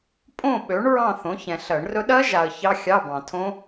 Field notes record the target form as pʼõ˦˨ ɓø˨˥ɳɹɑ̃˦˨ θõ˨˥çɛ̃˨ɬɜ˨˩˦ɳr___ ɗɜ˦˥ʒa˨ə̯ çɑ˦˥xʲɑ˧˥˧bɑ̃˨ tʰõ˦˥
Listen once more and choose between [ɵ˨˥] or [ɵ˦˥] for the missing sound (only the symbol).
ɵ˦˥